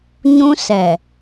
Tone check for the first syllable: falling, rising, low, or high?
high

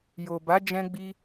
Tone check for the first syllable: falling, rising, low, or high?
low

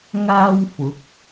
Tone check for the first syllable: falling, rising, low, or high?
high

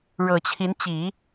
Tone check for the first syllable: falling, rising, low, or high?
low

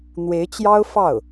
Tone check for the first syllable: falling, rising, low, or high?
rising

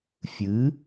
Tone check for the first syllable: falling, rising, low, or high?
rising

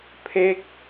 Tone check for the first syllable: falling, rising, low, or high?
falling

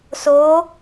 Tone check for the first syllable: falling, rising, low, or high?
rising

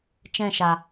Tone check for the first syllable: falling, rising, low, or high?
falling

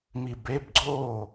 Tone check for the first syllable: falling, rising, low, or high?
low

